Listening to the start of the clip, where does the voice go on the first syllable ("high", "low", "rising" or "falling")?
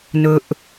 low